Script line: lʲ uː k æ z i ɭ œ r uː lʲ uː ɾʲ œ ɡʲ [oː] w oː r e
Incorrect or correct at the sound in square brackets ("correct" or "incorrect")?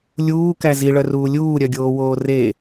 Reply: correct